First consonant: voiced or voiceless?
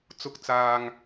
voiceless